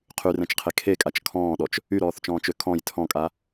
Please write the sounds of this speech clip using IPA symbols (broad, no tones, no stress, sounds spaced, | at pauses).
qʰ y r ɛ̃ t͡ʃ qʰ e kʰ e kʼ a t͡ʃ kʰ ɔ̃ː ɗ ɔ t͡ʃ | y ɾ ɔː θ t͡ʃ ɔ̃ː t͡ʃ ø kʰ ɔ̃ j tʰ ɔ̃ kʼ a